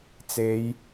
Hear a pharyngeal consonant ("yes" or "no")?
no